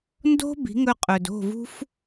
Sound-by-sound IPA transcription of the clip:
ndo̤˥ bi̤˩˥ŋɵ˧qʼɵ˩d o̤˥˩ vṳ˥f

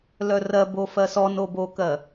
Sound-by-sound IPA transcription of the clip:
lœrɜ bofɜsɔn obokɜ

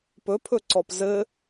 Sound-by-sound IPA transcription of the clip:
pɵpʰɵ ǀɔpzɘ

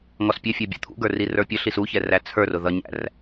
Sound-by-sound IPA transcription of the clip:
ŋɔspʲɛfʲæ bʲṵt̪ʰṵɡə˞ rirə˞pʲəɬis uçɛ ræt͡sʰə˞rʊ ðʌɲæ̰r

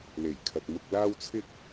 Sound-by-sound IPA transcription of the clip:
le˨˩jkʰɐ˨t̚ mʊ˨k̚laː˧wt͡sʰɪ˧k̚

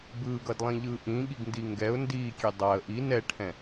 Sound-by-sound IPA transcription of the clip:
bɯːɡʌdlˠĩʎɯː ʔĩɠiɡndi ŋɡɛʊ̯ ndiːkʲe dˤaə̯ ʔi nɛʈʰɛ̃

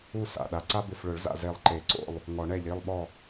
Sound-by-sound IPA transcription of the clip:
u˥˨ sa̰˩˧˩ɗa˩˧˩ǀa˥ bɪ˧˩fɭʊ˨˩˦ɭza̰˧˩ ze˧˩lˠǃe˨˩˦ǀo̰˥˨lˠ | ŋɔ˨˩˦ɳ ɛ˧˩ʎi˩˧˩lˠɓɔ˧˩

